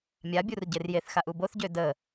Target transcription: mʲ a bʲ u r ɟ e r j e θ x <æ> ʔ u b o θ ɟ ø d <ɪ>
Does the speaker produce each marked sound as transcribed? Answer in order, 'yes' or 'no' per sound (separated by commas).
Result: no, no